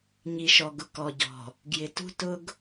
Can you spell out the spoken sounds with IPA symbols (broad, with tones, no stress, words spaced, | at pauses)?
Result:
ɲi˨ʃɔ˨ɡʊ˨ kɔ˨ɟɔ̤˨ | ɡjɪ˨ tṳ˦tʊ˦ɡ